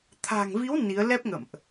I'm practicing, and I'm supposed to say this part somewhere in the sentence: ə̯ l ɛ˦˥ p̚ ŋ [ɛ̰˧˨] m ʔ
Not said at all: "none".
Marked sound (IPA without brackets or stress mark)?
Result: ə̰˧˨